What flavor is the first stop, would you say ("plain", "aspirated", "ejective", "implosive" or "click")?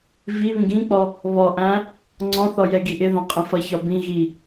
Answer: plain